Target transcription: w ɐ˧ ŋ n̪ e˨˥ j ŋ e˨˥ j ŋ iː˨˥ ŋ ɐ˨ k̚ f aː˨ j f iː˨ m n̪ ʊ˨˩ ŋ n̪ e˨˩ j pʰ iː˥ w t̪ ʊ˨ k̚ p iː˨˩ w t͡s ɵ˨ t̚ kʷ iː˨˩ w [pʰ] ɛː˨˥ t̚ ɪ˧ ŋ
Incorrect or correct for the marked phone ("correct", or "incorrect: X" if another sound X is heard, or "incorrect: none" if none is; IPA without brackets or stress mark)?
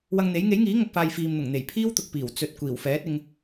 incorrect: f